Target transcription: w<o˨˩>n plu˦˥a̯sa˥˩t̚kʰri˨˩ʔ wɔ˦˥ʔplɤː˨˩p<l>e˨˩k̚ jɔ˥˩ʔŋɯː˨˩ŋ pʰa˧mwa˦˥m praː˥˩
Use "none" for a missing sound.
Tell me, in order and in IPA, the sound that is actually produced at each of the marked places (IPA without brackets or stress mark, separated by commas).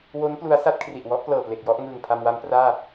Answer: o˦˥, l